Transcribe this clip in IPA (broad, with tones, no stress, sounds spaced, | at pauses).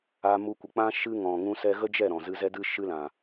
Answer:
a˧ m u˧ kʷ ə˨ k͡p ã˦ ʃ ɨ˦ ŋ ɔ̃˨ ŋ ũ˦ s ɛ˦ ɣ ə˦ d͡ʒ ɛ˦˨ ɾ ɔ̃˨ z ɨ˧ z ɛ˦ d ɨ˦ ʃ ɨ˦ l ã˨